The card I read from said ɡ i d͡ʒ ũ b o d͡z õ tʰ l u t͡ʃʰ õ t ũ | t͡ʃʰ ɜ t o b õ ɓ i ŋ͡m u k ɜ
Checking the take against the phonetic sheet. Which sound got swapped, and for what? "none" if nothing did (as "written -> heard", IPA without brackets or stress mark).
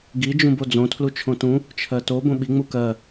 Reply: none